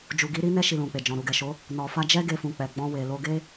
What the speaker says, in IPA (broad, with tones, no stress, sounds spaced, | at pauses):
d͡ʒ u˨ ɡ i˨˦ ɾ i˦ n ɛ˦ ʃ i˧ l ũ˨ k͡p e˨ d͡ʒ ɔ̃˨ ɾ u˨ ɡ ɛ˨ ʃ o˨˦ | n ɔ˨ f a˧ d͡ʒ ɛ˦ ɡ e˧ f ũ˨ k͡p ɛ˨ ɡ͡b ɔ̃˧ w e˨ l o˧ ɡ e˦